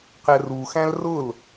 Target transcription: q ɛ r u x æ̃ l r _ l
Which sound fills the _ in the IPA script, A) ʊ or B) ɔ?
A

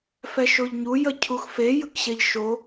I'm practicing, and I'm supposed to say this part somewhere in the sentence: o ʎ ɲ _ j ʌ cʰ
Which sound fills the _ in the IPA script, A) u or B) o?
A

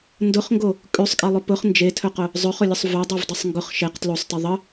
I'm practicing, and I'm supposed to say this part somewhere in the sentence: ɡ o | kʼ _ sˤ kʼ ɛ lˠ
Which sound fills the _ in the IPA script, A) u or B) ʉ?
B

